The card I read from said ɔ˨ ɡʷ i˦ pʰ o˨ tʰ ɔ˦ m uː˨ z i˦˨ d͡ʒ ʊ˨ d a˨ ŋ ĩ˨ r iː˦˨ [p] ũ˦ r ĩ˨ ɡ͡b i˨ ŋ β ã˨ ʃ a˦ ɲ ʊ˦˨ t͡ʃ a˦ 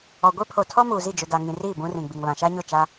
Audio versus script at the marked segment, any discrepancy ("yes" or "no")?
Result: yes